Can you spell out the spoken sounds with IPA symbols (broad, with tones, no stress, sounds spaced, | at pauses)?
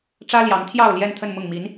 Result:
ʈ͡ʂ ä˥ l j ɑ˧˥ ŋ t̪ʰ j ɑ˥˧ ʊ̯ l j ɛ˥˧ n t̪ʰ ə˥˧ n m ʊ˥˩ ŋ m i˧˥ n